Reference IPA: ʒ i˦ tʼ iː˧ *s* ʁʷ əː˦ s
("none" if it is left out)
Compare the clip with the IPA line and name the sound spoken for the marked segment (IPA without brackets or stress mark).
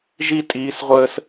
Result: s